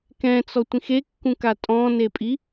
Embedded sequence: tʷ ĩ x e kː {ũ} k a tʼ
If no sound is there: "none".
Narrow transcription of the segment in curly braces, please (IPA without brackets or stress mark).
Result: ũ